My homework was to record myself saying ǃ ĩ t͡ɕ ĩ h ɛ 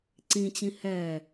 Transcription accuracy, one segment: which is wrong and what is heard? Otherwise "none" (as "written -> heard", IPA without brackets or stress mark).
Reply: ǃ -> ǀ